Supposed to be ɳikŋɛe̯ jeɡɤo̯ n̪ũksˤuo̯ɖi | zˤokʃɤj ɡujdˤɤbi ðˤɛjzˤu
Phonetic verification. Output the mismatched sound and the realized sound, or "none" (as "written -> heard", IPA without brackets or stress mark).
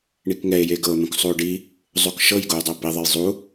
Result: none